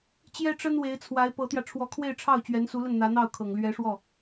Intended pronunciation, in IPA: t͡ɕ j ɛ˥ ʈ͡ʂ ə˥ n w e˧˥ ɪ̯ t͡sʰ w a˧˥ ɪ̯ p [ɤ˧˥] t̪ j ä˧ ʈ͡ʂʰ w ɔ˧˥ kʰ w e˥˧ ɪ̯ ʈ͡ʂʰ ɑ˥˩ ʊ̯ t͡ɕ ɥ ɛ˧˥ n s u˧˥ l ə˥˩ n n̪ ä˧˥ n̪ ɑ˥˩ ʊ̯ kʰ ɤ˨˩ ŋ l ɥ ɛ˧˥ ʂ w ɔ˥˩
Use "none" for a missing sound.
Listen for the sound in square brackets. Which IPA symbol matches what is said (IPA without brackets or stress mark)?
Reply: ɤ˧˥